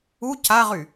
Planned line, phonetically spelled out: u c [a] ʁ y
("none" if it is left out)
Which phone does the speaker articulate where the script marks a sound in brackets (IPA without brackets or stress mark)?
a